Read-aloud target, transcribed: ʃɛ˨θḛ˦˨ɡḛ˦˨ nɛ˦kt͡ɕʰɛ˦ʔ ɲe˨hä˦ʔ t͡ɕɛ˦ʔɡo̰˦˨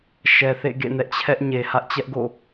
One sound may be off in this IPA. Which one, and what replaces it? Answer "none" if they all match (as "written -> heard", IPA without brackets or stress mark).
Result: k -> ʔ